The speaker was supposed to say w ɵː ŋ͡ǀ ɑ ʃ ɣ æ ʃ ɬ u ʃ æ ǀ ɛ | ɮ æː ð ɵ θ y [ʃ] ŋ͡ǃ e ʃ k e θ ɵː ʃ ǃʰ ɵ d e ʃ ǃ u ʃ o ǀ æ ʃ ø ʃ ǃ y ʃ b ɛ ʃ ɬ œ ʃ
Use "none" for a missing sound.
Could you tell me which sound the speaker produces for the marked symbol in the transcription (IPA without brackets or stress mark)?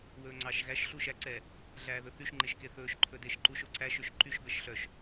ʃ